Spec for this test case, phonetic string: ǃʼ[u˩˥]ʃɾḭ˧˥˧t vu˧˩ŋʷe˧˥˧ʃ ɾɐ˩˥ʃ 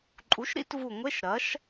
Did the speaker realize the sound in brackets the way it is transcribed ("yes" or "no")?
yes